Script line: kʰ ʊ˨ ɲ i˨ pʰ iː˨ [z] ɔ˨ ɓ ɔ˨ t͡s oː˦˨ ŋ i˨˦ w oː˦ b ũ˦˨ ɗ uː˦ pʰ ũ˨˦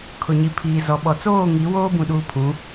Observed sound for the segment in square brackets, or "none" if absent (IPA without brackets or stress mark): z